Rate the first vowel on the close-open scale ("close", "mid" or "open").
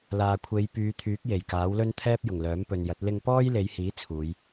open